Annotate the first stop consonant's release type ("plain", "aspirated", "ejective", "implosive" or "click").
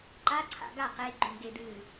click